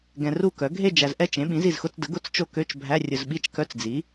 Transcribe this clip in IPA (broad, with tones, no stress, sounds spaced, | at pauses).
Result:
ɡ ɛ̃˨ r u˦˨ k œ˩˥ ɡʱ e˦˨ d͡ʒ æ˨ z ʔ ɛ˦˨ t͡ʃ ẽ˩˥ ɓ ĩ˩˥ z i˦˨ z x ʊ˧˥˧ t͡s d ə˩˥ ɡ ʊ˧˥˧ t͡s t͡ʃ o˦˨ k ø˧˥˧ t͡ʃ bʱ æ˧˥˧ rʲ ʊ˨ z ɓ i˧˥˧ t͡ʃ k œ˧˥˧ t͡s d͡z i˩˥